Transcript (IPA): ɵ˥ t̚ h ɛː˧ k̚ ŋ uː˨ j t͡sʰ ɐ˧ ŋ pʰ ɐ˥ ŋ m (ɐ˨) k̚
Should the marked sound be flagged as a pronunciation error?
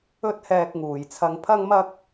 yes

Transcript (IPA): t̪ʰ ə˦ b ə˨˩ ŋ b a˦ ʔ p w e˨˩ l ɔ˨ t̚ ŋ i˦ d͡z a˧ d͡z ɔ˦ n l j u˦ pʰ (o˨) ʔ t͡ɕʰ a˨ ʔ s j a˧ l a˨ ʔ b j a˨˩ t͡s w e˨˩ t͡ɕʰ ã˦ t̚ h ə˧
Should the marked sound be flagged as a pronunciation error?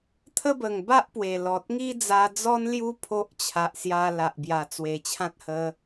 yes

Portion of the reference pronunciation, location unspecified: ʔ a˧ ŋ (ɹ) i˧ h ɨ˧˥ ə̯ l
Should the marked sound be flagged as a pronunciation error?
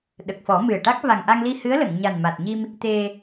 yes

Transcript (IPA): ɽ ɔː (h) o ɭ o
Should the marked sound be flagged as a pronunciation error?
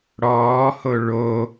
no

